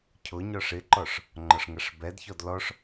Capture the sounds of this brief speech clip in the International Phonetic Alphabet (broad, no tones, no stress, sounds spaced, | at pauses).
cʰ ʊ ɲ ɔ ʂ ɪ ǃ ɔ ʂ | ŋ͡ǃ ɒ ʂ ŋ ʌ ʂ b ɛ d ç ɔ d l ɔ ʂ